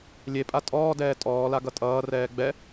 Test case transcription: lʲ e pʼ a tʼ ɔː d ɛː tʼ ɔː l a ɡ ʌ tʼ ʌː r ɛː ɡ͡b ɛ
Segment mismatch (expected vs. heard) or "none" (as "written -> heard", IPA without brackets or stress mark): none